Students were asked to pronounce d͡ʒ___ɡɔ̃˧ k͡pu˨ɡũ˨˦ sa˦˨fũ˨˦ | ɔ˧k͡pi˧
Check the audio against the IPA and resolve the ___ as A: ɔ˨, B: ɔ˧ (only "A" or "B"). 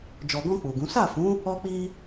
A